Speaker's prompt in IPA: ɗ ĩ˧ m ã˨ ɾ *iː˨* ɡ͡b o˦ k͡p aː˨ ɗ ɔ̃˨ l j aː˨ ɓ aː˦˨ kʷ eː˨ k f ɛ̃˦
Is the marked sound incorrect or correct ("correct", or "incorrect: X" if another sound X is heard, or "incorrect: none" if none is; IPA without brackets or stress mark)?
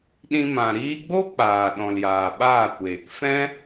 incorrect: iː˧